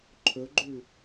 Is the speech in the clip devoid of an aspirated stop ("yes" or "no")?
no